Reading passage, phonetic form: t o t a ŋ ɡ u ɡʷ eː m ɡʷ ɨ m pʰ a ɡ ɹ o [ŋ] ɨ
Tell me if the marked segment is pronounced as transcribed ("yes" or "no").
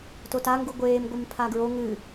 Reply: yes